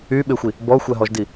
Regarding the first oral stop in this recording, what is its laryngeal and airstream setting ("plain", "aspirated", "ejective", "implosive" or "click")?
implosive